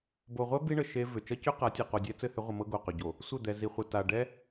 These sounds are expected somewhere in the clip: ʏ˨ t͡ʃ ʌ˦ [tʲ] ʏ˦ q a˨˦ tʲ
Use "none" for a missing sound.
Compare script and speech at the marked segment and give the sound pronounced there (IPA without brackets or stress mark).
c